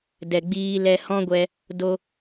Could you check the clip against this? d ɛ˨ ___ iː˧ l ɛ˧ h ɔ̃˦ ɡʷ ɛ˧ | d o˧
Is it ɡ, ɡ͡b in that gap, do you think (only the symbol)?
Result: ɡ͡b